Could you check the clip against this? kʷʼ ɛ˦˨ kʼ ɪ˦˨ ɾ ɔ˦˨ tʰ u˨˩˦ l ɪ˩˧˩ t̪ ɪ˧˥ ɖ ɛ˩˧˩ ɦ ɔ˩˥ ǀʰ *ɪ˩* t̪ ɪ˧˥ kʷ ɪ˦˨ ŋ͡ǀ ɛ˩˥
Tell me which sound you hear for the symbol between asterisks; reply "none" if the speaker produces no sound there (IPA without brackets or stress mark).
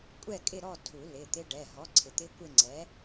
ɪ˩